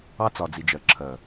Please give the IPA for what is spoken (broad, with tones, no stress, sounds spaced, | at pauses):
ɑ˦ t͡s ɒ˨ d͡z i˨ d͡ʒ ɜ˨ ǁʰ ɜ˨